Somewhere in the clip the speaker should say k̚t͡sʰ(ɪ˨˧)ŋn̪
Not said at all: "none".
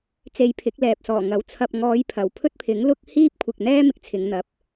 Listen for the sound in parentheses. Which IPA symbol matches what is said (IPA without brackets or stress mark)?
ɪ˨˧